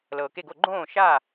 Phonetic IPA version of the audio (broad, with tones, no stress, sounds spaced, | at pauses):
l ɤː˨ k e˦˨ ɡ o˦˨ ɡ͡ǃ õː˦˨ ʃ a˦˨